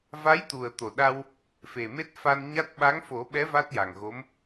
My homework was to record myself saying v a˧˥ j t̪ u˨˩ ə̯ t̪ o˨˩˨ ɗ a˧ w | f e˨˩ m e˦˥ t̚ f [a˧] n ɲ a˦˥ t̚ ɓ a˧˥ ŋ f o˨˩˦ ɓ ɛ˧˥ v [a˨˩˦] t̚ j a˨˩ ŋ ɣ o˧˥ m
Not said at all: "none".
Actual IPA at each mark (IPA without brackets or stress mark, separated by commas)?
a˧, a˦˥